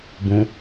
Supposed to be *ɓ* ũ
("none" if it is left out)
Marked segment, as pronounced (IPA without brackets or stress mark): b